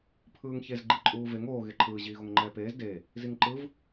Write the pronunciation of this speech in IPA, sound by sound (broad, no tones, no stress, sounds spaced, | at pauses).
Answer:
pʰ ɯː ŋ ç e z ɡ͡ǃ i ǃʼ uː v e ŋ oː ɣ e ǃʰ ɯː ʑ iː ɣ o ŋ ŋ͡ǃ ɛː p eː z d e | z i ŋ ǃ ɯ v